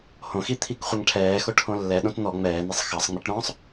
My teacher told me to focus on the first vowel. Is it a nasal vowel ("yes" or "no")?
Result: yes